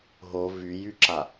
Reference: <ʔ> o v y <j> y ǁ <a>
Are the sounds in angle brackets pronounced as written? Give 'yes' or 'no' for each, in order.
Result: no, yes, yes

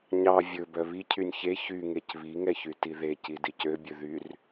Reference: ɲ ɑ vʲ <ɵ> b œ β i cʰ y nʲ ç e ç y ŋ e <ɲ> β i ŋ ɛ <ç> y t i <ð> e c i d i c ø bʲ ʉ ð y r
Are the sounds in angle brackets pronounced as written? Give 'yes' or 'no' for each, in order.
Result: yes, no, yes, yes

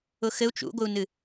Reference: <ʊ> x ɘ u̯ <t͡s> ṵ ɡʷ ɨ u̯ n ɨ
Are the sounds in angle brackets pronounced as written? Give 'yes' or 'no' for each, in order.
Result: yes, no

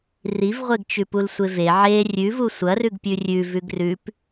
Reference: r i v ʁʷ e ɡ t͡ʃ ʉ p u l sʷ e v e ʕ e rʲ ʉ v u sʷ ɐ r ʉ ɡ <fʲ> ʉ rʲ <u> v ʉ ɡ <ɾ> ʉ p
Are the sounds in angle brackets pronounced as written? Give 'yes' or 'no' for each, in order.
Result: no, no, no

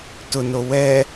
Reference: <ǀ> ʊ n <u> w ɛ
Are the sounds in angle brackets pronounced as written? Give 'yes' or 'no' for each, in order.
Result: no, no

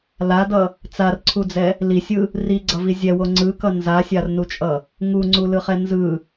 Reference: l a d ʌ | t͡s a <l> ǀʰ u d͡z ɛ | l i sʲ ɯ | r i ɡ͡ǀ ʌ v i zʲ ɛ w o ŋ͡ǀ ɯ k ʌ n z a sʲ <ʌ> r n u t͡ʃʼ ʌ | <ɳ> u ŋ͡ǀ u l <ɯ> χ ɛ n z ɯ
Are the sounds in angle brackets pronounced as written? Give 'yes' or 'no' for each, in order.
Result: no, no, no, yes

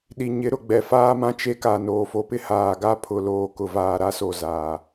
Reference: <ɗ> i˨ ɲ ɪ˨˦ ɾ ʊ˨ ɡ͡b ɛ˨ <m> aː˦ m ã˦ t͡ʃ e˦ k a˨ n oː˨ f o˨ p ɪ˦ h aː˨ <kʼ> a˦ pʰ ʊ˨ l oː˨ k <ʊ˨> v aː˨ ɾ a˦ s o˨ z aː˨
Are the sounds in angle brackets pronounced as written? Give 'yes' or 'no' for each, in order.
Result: yes, no, no, yes

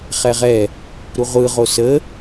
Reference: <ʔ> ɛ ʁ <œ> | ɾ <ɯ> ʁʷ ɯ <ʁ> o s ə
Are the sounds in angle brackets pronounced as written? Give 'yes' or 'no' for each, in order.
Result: no, no, no, yes

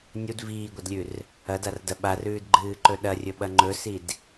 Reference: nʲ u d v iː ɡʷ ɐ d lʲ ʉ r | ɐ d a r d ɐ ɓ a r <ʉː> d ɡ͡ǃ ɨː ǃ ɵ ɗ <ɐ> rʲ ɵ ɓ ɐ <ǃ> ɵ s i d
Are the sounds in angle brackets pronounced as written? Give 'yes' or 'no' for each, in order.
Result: yes, yes, no

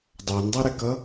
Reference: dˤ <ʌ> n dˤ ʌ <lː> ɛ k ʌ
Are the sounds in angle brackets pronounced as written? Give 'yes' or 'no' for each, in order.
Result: no, no

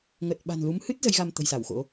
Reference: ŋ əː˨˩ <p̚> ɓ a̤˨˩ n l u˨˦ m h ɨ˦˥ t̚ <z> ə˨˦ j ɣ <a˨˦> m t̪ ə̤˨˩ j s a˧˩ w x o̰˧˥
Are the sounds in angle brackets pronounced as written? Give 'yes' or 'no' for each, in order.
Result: no, yes, no

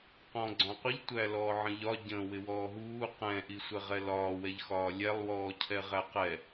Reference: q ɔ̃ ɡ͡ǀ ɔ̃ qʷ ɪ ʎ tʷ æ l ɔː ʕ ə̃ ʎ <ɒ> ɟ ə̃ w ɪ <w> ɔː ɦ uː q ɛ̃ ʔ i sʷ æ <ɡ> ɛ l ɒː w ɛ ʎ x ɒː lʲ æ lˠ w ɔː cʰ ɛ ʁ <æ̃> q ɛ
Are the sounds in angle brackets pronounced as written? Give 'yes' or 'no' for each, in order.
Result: yes, yes, no, no

